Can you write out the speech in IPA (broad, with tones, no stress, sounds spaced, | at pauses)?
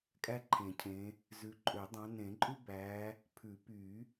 kʼ æ˥ ǃʰ ẽ˨˩˦ cʰ ẽ˨˦ | z ʉ˨˦ ǃʼ ø˨˩˦ dˤ ɑ̃˨˦ n ẽ˨˩˦ ǃʼ ʉ˥ b æ˨˦ | pʰ ʉ˨˩˦ p y˨˩˦